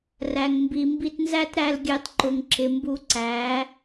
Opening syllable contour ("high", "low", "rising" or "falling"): low